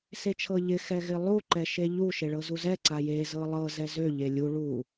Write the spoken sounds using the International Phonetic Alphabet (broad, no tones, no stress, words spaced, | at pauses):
set͡ʃʰɤʎɪ xɛɣɪlˠu ǃɛʃeʎu ʃeɭɤzuzɛ ǀaje zɤlˠɤ zɛzø ʎelʲu ɭu